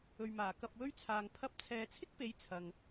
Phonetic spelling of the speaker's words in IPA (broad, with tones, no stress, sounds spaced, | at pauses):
ɵ˨ ɥ m aː˨˩ k ɐ˨ p̚ w ɵ˥ ɥ t͡sʰ aː˧ ŋ pʰ ɐ˧ p̚ t͡sʰ ɛː˨ t͡sʰ ɪ˥ k̚ p e˨˥ j t͡sʰ ɐ˨ ŋ